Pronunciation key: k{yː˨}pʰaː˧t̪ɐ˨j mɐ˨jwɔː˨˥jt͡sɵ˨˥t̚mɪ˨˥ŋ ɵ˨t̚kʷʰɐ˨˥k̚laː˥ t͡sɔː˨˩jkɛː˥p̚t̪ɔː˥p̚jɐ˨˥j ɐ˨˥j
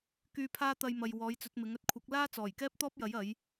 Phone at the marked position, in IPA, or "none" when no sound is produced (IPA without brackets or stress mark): yː˨